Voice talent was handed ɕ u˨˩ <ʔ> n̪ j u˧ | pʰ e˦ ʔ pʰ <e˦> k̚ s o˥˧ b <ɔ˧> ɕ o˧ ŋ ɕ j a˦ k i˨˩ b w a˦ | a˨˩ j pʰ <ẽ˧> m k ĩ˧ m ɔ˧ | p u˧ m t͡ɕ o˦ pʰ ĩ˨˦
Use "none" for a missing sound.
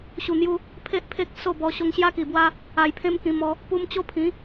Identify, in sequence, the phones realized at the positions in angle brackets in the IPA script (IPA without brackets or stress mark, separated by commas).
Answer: none, e˦, ɔ˧, ẽ˧